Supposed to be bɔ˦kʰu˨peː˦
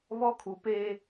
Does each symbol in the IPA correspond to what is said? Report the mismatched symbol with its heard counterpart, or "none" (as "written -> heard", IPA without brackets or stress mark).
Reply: b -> β